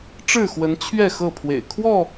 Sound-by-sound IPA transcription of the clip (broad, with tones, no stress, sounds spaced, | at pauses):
ʈ͡ʂ ɻ̩˥˨ x w ə˨˦ n t͡ɕʰ ɥ ɛ˥˨ x ɤ˥˨ pʰ w ḛ˨˩ ɪ̯ kʰ w ɔ˥˨